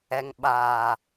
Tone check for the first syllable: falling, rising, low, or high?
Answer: low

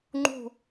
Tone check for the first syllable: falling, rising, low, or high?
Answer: falling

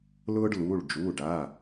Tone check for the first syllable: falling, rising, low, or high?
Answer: high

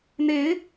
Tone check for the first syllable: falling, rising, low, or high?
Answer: rising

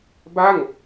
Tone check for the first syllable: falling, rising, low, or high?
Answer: falling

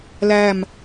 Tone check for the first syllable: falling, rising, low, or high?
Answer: falling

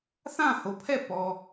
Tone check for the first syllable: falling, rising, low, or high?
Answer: falling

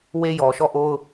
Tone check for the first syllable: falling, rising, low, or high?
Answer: high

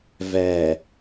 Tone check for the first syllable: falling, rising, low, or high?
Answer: low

